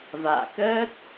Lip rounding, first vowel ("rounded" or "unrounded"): unrounded